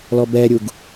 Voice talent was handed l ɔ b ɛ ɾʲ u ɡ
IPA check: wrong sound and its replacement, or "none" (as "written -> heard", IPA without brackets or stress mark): none